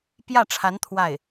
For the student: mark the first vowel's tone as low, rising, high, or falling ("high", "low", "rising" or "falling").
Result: falling